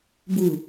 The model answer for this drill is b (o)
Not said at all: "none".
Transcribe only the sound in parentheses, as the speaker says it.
u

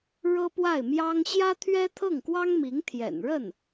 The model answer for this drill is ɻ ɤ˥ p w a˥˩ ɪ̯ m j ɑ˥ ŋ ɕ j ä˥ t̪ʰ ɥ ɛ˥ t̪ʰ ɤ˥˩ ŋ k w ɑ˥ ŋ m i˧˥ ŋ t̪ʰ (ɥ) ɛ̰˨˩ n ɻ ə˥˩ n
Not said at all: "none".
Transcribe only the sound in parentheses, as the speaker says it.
j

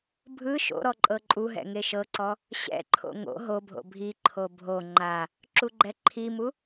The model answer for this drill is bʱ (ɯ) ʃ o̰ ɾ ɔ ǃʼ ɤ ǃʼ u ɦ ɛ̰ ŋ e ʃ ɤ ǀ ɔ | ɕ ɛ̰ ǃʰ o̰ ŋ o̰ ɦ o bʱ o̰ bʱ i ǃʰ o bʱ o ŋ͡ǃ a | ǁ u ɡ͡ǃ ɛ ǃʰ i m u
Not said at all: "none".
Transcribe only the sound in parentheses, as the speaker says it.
ɯ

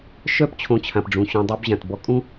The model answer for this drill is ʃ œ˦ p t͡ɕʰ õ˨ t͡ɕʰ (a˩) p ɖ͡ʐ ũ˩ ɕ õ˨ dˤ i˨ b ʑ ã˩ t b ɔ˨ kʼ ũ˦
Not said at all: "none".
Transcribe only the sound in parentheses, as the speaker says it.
ã˩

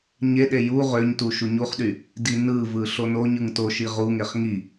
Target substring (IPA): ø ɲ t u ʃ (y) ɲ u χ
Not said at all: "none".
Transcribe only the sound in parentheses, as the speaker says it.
u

